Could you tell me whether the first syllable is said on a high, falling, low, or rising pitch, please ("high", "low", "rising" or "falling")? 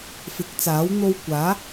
rising